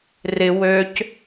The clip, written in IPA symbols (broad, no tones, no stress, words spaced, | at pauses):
rɪ wøc